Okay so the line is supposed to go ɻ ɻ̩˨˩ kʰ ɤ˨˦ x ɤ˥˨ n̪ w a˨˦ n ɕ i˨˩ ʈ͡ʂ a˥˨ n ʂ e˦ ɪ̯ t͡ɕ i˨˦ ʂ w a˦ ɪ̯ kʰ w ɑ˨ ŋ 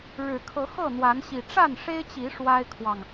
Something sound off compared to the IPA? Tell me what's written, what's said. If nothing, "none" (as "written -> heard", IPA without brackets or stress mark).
none